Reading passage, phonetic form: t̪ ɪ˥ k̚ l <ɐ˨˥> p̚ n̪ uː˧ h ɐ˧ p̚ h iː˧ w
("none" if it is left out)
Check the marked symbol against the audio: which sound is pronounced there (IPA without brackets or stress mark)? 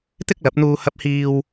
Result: ɐ˨˥